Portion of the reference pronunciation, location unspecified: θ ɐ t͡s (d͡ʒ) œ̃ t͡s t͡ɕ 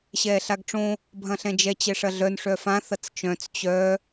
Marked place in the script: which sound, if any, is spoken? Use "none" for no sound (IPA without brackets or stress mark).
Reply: t͡ʃ